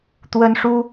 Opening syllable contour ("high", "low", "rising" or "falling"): high